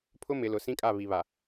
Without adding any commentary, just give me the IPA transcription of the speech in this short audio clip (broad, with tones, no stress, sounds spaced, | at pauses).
pʰ ʊ˦ m ɪ˨˦ l ʊ˨˦ s ĩ˦ kʼ a˦˨ β i˨ β a˨